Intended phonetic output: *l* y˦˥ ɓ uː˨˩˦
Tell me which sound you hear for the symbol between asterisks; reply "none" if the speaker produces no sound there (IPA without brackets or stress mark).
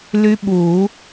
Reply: l